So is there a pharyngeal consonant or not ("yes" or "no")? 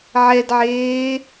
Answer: yes